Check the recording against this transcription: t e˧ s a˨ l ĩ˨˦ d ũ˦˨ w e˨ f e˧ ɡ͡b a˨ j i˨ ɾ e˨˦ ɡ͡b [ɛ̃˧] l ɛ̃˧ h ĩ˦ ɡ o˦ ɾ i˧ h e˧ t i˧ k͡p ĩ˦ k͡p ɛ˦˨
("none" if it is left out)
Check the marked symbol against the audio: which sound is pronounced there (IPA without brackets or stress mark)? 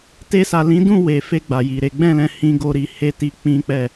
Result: ɛ̃˦˨